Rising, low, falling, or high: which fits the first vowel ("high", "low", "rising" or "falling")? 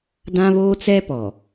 high